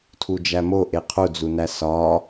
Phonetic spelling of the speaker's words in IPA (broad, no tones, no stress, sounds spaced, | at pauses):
tʰ u d͡ʒ æ m o ʔ e qʰ u d͡z u n æ s ɒ